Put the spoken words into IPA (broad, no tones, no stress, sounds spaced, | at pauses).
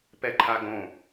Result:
p ɛ ǃʰ a ɡ õ